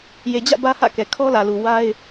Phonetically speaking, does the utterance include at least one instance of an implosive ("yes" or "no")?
no